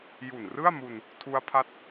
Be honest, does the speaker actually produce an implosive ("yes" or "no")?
no